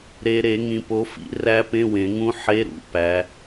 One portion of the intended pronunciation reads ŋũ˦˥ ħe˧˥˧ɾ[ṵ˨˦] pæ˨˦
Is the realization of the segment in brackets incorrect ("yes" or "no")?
no